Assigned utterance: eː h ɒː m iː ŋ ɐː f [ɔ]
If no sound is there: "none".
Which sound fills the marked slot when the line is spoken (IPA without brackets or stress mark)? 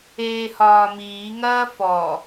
ɔ